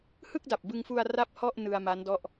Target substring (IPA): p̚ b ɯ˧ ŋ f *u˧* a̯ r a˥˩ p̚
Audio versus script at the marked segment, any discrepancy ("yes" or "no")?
no